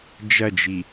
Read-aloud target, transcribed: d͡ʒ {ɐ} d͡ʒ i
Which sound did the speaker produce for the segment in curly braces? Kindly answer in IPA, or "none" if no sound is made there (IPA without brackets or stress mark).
ɐ